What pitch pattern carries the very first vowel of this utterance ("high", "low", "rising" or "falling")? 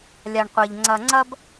low